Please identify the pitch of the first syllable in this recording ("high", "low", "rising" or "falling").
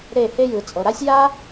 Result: falling